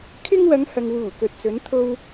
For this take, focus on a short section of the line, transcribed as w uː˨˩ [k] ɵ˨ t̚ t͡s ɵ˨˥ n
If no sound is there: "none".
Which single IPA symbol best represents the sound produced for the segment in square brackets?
k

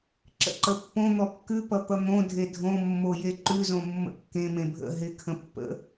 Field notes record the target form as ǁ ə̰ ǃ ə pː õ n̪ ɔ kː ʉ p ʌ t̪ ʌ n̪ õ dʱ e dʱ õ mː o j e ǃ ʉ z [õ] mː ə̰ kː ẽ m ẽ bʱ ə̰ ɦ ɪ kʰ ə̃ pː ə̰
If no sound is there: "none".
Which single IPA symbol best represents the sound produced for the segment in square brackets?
õ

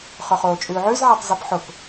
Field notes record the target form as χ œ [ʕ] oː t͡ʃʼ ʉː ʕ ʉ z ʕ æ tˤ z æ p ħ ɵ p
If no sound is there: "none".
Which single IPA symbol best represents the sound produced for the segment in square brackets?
χ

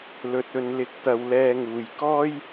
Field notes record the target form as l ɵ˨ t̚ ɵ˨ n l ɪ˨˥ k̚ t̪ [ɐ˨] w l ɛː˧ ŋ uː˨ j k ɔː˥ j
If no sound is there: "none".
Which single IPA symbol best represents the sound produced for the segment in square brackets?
ɐ˨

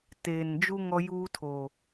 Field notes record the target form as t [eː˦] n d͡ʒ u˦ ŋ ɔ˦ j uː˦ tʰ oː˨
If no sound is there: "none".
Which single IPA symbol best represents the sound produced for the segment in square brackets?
eː˨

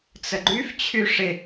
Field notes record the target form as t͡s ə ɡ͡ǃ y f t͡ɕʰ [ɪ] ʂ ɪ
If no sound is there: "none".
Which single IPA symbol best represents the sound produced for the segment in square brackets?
y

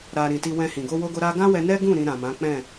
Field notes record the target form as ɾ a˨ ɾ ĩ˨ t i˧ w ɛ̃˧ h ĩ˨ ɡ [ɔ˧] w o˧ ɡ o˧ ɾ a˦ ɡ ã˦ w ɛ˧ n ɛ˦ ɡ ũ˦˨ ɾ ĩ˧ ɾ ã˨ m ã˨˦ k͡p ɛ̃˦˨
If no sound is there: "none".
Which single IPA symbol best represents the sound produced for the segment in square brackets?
o˧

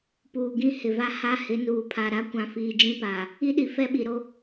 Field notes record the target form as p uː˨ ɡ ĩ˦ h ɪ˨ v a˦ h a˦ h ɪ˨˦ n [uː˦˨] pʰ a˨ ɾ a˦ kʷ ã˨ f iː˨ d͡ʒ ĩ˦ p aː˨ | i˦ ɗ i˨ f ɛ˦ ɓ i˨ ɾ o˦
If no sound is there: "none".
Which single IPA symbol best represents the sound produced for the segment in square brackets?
uː˨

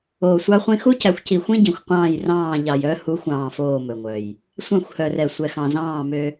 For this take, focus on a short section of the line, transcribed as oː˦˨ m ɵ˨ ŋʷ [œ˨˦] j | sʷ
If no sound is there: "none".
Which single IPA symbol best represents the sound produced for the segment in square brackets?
œ˨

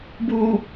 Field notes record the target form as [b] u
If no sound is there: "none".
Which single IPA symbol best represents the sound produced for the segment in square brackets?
b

